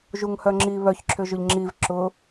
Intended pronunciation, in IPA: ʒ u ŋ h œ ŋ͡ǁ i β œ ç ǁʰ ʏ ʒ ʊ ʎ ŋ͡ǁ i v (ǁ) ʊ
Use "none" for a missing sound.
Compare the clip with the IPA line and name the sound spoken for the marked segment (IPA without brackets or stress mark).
ǁ